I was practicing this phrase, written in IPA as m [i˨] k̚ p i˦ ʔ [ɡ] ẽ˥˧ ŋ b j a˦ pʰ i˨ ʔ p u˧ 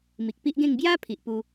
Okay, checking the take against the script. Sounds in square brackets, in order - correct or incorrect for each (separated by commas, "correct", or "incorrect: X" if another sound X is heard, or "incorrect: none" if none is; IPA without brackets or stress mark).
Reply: correct, correct